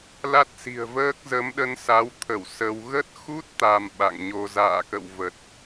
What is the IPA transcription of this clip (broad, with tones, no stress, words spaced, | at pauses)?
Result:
la˦˥t̚si̤˨˩ə̯vəː˦˥k̚ zə˨˦mɗə˧n sa˨˦wt̪ʰə˧˩w sə˧w ɣə˦˥t̚xu˦˥t̚ t̪a˧mɓa̰˧˨ŋɲo˧ za̰ː˧˨kə̰˧˨w və˨˩t̚